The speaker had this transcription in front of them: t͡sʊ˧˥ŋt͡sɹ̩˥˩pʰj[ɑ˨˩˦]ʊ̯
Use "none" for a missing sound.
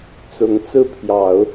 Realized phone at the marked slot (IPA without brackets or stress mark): ɑ˨˩˦